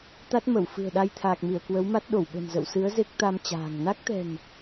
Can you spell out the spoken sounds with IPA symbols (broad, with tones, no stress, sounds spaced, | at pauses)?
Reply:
t̪ a˦˥ t̚ m ə˧˩ w f ɨ̤˨˩ ə̯ ɗ a˧ j t̪ʰ aː˨˩ k̚ m i˧˩ ə̯ k w ə˨˦ w m a˦˥ t̚ ɗ o˧˩ w ɓ ə̤˨˩ n z ə̰˧˨ w s ɨ˨˦ ə̯ z e˦˥ k̚ t̪ a˧ m t͡ɕ a̤ː˨˩ ŋ n a˦˥ k̚ t̪ ɛ̤˨˩ n